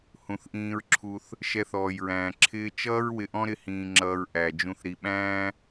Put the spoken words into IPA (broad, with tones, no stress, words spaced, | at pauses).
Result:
hũ˨θʔĩː˧ɹǁʰu˧θ | ʃɛ˧θɔː˨jɹæ̃ː˨ ǁʰɪː˧t͡ʃʌː˦ɹ wɪ˧ʔɔ̃˦ɾɪ˧ hĩː˨ŋ͡ǁʌː˨ɹ ʔæ˨ d͡ʒũ˨θɾi˨ɓæ̃ː˦